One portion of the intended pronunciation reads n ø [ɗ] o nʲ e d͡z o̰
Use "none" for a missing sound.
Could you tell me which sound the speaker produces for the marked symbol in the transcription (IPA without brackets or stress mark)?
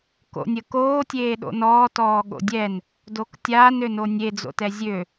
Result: n